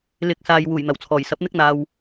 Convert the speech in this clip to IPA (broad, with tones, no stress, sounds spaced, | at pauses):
l ɪ˨˥ k̚ s aː˨ j w uː˨˩ j n̪ ɐ˨˩ w t͡sʰ ɔː˨˩ j s ɐ˨˥ p̚ n̪ ɪ˥ k̚ n̪ aː˨ w